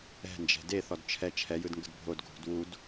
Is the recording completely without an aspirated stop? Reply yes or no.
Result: no